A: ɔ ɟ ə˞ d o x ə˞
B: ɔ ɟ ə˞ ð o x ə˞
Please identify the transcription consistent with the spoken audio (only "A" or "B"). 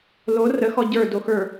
A